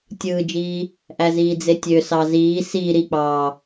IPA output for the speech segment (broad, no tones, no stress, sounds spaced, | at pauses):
tʲ ɯː d͡ʒ iː | ʔ æ z iː d͡z e tʲ ø s ɑ z iː s iː ɾ i k͡p ɑː